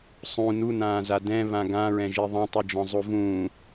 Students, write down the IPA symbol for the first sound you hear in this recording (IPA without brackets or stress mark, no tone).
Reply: sˤ